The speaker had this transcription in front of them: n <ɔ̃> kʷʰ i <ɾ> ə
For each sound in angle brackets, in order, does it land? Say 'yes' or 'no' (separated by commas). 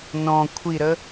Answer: yes, yes